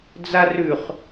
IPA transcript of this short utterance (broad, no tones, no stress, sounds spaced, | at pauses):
d͡z a r ʉ χ